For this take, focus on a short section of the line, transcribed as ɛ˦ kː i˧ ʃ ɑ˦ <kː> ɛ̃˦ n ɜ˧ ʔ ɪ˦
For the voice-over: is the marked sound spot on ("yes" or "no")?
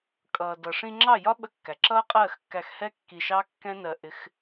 yes